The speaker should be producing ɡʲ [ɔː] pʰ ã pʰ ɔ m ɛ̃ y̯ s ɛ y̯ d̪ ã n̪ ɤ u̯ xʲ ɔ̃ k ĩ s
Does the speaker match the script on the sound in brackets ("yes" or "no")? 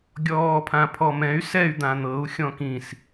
yes